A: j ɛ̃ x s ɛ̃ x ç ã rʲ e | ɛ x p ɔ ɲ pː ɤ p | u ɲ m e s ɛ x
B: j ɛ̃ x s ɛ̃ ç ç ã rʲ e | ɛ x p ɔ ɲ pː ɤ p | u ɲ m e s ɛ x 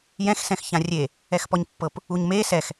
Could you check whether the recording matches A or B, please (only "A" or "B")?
A